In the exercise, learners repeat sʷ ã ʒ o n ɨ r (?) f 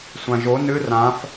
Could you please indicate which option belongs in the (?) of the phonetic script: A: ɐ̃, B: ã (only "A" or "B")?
B